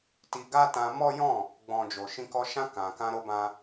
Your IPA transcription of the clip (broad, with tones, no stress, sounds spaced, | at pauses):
t i˧ ɡ a˦ t ã˧ m ɔ˦ j ɔ̃˦˨ | ɡ͡b ɔ̃˨ d͡ʒ o˨ ʃ ĩ˧ k ɔ˧ ʃ ã˧ k ã˨ k ã˧ ɾ o˧ b ã˧